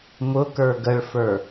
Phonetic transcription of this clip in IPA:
m ʊ k ə˞ ɡ ə ɭ f ə˞

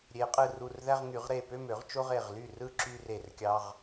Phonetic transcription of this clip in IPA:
ɾʲ e˨˩˦ qʼ ɯ˧˩ r u˧˩ r ð æ˦ ʁ ŋ y˨˩˦ ʁ ɾ e˧˩ p ø˦ m ø˨˩˦ ʁ t͡ʃ o˦ ʁ e˧˩ ʁ l y˥˩ r ɯ˥˩ ǁ y˦ r e˧˩ r kʲ ɑ˦ ʁ

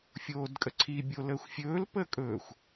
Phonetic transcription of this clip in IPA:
fʲ oː d kʼ ə ǀʰ i bʲ o l əː xʷ fʲ ɵː l p əː kʼ ɵ xʷ

